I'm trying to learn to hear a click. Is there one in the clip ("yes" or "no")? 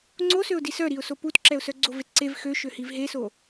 yes